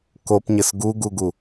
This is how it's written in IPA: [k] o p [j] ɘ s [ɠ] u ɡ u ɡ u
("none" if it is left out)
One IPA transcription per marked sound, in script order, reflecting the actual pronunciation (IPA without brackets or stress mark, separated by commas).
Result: k, ɲ, ɡ